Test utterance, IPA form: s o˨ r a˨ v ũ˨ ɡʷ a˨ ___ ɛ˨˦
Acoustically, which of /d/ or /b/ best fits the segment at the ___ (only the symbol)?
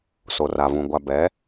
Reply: b